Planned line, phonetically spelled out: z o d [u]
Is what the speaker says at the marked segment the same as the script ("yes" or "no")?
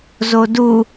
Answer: yes